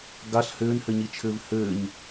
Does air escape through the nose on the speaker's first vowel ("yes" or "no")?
no